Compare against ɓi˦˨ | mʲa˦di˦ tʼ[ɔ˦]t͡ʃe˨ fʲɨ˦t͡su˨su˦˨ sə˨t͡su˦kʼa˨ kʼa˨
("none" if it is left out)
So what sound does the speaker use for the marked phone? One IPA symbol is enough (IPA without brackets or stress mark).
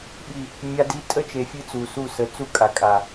ə˦